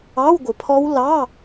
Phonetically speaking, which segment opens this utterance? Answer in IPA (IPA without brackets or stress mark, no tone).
ɑ